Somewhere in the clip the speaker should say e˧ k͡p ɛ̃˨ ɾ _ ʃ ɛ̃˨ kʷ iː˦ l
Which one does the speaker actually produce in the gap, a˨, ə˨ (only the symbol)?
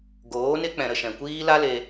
ə˨